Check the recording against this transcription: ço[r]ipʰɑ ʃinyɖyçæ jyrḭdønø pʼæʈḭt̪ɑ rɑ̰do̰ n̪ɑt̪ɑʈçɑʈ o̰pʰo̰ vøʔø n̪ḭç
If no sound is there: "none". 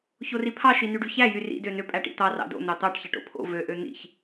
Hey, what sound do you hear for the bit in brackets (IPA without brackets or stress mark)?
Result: r